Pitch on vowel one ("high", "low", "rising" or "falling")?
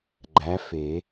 rising